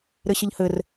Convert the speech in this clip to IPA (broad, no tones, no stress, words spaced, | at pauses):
ɾɘɕəʎhɘr